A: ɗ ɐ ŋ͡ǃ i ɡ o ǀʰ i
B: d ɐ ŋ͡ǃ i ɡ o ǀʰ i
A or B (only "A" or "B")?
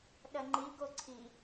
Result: A